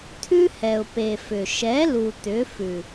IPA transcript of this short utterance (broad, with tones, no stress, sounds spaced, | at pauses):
t̪ʰ ʉ˦ h ɛ˨ ʊ̯ p e˨ f ʏ˨ ʃ ɛ˨˦ l u˨ t̪ ʏ˨˦ f ʉ˨